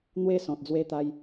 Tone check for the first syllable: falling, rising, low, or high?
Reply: high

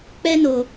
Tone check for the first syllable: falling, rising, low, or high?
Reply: high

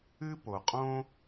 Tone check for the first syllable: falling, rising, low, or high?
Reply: high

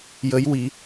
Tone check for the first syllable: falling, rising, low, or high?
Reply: rising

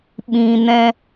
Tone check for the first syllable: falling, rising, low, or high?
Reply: low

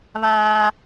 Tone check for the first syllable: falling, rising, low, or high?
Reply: high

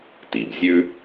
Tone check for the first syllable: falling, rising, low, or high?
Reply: low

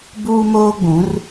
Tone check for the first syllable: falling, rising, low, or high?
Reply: high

